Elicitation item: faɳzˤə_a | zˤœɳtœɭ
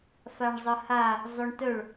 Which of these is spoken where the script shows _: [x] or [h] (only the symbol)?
h